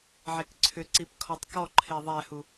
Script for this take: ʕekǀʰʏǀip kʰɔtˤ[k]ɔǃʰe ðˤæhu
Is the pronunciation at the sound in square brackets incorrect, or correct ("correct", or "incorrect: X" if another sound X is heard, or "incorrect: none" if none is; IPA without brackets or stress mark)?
correct